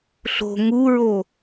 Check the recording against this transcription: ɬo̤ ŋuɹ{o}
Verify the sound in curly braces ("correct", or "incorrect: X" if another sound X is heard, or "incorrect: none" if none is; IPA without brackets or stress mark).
correct